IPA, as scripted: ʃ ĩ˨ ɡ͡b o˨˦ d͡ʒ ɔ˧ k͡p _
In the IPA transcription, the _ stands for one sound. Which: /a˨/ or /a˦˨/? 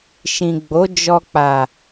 a˨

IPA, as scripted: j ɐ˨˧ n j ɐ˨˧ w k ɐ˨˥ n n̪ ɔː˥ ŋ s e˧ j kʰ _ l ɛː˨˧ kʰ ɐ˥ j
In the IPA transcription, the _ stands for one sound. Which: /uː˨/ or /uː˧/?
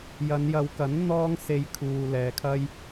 uː˨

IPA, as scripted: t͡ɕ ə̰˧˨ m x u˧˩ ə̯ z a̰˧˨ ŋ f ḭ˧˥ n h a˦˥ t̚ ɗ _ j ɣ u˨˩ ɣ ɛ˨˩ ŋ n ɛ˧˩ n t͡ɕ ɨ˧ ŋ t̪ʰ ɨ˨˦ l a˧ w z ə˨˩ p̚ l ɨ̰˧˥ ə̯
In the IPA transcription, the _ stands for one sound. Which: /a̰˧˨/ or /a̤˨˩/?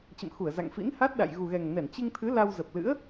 a̰˧˨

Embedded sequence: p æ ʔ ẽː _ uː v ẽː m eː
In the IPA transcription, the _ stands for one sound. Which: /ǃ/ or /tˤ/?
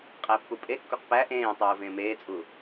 tˤ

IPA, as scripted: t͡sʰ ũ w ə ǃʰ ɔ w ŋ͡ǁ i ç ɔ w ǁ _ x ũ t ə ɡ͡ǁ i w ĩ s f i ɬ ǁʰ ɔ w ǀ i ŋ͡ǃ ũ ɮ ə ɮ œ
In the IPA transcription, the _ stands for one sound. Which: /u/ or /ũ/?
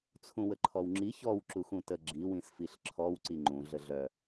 u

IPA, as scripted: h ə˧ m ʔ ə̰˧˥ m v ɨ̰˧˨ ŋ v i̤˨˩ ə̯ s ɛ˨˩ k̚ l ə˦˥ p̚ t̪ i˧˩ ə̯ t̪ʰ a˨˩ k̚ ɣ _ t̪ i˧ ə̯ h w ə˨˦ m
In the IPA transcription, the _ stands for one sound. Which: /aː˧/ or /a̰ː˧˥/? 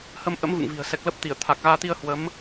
aː˧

